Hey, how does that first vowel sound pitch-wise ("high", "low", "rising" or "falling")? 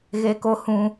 high